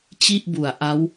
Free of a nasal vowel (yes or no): yes